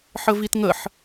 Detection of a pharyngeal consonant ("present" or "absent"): present